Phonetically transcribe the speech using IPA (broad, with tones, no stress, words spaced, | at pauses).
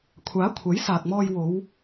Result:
kʷʰaː˨˥ kʷʰɐ˨˥jsaː˨k̚mɔː˧j wo˨˧w